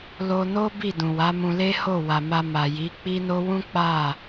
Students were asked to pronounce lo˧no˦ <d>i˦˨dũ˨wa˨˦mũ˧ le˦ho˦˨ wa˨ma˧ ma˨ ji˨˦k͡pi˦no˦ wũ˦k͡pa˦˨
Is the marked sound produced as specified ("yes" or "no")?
no